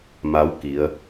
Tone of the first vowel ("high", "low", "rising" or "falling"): rising